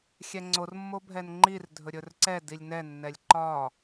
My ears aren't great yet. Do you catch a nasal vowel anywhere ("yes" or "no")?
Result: no